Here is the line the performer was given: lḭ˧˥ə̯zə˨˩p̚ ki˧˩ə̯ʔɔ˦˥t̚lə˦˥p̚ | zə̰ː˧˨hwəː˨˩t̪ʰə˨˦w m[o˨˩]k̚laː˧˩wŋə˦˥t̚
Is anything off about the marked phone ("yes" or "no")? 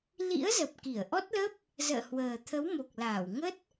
no